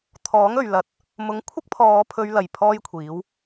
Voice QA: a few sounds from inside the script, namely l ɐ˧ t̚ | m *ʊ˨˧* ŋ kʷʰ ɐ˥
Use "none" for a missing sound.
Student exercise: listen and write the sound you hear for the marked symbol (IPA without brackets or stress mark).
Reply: ʊ˨˥